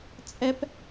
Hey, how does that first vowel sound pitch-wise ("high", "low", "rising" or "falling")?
high